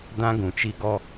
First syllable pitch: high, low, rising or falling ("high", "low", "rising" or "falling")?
high